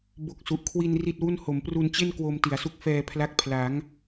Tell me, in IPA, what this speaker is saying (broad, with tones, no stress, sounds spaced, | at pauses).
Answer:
b o˦˥ k̚ s u˨˩ ʔ kʰ w i˧ n r i˥˩ t̚ w u˥˩ n h o˩˦ m p r u˧ n t͡ɕ e˥˩ n k w o˧ m t i˩˦ a̯ s u˦˥ k̚ f ɛː˧ pʰ l a˦˥ k̚ pʰ l a˩˦ ŋ